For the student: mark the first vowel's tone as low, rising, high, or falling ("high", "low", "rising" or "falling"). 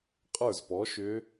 falling